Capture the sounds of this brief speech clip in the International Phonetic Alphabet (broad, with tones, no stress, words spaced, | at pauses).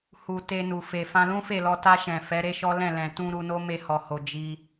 hu˨ te˧nu˨fe˨ fã˧lũ˦fe˦˨lɔ˧ ta˧ʃɛ̃˨ fɛ˨˦ɾe˦ʃɔ˦ lɛ̃˦˨ lɛ̃˨tũ˧ ɾu˧no˦ me˧hɔ˨ho˨ d͡ʒi˧